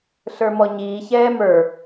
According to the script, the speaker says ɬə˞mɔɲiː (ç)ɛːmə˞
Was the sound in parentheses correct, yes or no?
yes